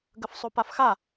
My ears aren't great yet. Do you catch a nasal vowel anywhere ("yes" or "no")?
no